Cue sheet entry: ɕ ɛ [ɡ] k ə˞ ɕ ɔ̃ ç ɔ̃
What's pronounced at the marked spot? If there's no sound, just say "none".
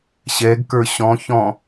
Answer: ɡ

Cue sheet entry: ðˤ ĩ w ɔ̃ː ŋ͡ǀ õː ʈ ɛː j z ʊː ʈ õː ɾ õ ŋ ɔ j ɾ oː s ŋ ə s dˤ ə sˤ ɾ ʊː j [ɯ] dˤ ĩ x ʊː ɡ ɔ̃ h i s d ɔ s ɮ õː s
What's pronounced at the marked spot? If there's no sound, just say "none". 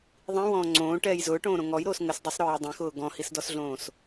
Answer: ʊ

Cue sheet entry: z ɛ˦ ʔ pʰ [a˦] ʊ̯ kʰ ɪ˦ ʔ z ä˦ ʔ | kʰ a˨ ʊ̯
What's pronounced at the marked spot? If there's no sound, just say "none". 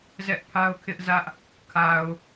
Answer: a˦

